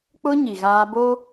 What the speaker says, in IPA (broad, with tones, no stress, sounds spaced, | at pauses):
k͡p ʊ˦ ɲ i˨ ɣ aː˦ b o˦